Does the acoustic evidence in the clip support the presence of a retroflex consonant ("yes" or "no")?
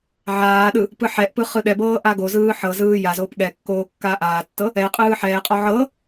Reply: no